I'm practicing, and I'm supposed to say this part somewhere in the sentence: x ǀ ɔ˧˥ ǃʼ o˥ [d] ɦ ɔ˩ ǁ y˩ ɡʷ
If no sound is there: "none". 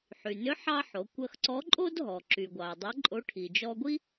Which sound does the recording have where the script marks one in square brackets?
d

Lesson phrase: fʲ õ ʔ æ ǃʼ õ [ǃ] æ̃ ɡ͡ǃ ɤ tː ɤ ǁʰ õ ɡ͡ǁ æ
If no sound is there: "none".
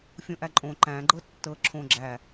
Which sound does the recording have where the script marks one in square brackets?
ǃ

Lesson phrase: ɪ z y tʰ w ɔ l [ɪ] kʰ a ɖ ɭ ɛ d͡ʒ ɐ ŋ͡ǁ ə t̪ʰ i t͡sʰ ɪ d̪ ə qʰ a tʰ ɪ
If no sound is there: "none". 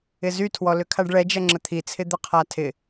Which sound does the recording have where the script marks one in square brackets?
ʏ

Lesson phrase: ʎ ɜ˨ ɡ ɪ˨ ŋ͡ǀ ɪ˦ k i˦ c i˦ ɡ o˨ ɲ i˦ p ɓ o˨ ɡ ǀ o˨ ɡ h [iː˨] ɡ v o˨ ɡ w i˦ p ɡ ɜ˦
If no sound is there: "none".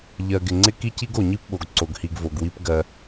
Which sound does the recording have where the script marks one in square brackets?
i˨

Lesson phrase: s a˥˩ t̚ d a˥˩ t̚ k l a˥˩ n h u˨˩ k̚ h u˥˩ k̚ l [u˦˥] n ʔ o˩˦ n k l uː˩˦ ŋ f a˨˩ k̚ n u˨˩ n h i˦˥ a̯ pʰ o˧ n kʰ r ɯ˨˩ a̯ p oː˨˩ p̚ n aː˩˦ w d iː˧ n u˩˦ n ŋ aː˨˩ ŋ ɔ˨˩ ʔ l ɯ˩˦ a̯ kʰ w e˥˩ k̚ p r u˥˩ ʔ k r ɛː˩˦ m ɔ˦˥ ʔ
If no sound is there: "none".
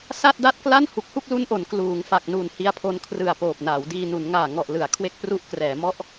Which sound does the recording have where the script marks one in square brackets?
u˦˥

